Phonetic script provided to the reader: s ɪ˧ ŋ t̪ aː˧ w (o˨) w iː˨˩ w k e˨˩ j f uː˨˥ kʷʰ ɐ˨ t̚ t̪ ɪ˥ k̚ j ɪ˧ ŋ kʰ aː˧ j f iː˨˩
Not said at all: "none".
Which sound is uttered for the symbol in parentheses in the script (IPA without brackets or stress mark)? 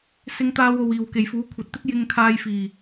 o˨